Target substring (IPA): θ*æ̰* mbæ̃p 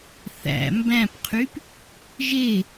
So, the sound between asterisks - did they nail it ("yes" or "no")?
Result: yes